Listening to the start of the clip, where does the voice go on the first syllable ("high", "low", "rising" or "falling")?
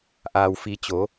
low